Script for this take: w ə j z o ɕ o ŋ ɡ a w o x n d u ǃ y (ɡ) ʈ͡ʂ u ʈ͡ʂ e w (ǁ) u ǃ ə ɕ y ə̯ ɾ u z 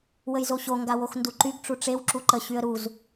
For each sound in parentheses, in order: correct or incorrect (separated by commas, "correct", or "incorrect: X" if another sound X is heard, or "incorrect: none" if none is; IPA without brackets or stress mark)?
correct, correct